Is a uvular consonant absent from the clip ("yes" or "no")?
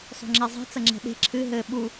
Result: yes